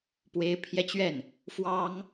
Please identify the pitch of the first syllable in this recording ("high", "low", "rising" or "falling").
rising